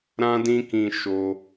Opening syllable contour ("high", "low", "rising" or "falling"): high